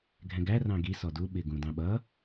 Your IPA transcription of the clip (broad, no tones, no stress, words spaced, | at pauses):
ɡʱɛ̃ɡæ rɑ̃ɡi sɔdu ɓɪ ɡũdɑ̃ɓʌ